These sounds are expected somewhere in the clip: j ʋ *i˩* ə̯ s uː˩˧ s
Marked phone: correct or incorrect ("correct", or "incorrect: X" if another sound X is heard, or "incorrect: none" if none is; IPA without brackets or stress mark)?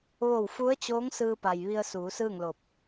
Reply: incorrect: i˧